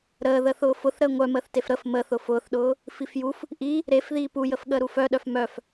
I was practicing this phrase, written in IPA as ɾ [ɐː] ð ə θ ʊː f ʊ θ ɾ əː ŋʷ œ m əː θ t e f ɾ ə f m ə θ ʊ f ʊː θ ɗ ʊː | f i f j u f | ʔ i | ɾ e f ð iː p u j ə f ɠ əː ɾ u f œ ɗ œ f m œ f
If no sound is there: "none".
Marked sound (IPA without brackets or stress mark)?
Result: əː